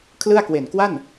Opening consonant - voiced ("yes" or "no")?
no